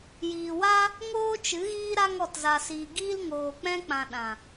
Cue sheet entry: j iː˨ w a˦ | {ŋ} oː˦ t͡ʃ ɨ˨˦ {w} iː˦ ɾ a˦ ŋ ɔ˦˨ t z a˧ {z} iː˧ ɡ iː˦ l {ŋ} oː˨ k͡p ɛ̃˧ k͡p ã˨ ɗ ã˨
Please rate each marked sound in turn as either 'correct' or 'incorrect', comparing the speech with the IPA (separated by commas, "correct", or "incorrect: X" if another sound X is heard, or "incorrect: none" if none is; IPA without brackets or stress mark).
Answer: correct, incorrect: ɣ, incorrect: s, correct